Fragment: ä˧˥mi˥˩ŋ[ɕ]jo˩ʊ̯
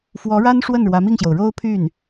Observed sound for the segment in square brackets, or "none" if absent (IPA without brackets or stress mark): ɕ